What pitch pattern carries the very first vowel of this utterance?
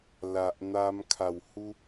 low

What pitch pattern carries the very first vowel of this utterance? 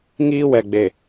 high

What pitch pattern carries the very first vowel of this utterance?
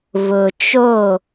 low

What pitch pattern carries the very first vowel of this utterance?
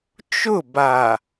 falling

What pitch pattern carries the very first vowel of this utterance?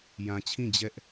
low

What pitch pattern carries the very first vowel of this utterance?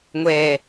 low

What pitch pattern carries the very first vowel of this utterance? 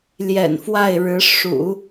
low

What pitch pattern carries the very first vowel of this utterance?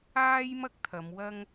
high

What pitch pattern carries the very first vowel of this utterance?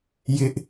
high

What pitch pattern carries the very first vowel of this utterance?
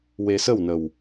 low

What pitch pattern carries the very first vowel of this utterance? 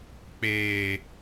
high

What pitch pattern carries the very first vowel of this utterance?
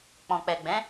low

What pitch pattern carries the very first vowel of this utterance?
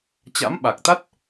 rising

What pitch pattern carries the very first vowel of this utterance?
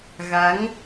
rising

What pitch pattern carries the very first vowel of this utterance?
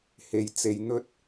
low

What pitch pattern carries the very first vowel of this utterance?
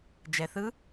low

